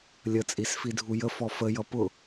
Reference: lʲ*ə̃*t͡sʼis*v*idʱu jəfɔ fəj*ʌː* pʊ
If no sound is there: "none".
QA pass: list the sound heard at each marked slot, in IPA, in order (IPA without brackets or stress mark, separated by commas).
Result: ə, f, ʌ